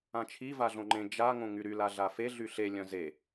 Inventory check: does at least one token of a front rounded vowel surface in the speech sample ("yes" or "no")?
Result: yes